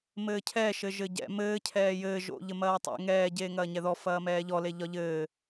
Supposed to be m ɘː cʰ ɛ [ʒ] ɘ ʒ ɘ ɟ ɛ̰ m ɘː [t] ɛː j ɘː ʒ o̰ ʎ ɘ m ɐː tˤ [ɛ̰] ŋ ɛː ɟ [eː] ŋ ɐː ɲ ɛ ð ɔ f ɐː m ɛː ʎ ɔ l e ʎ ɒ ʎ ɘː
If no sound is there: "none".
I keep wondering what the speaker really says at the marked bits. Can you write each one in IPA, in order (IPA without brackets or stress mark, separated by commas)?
ʃ, cʰ, ḛ, eː